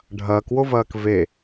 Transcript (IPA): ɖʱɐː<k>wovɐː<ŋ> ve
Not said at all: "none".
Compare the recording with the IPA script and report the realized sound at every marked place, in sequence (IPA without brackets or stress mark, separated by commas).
k, k